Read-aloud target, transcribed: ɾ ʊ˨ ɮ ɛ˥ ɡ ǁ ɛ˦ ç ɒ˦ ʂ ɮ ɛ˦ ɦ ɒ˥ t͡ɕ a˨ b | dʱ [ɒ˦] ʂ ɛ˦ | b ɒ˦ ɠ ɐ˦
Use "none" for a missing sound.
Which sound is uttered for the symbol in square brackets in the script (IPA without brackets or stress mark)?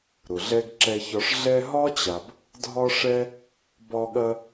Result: ɒ˦